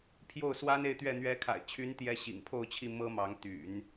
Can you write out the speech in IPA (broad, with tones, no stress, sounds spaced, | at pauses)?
pʰ j o˥˩ ʊ̯ s w a˥ n e˥˧ ɪ̯ t̪ ɥ ɛ˥˩ n̪ ɥ ɛ˧˥ kʰ a̰˨˩ ɪ̯ t͡ɕʰ y˧˥ n t̪ j ɛ˧˥ ɕ ḭ˨˩ ŋ pʰ o˥˧ ʊ̯ t͡ɕʰ i˥˩ m ɤ˥ m ɑ˧˥ ŋ t̪ y̰˨˩˦ n